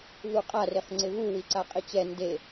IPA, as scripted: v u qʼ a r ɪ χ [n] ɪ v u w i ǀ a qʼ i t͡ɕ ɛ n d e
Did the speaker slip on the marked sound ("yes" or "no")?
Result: yes